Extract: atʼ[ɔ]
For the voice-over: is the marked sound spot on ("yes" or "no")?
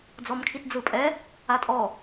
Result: yes